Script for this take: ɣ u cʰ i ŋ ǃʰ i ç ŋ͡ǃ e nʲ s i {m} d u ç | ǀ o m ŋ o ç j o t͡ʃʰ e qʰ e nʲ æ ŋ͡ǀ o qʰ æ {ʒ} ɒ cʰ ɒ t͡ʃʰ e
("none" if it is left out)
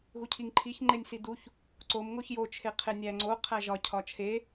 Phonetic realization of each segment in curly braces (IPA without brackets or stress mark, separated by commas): none, ʒ